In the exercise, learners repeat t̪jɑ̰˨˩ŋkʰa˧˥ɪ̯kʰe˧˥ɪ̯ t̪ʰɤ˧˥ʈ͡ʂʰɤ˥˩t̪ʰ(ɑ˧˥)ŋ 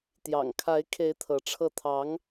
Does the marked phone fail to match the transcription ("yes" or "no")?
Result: no